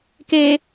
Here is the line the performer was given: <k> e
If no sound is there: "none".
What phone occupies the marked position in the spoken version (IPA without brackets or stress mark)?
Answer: k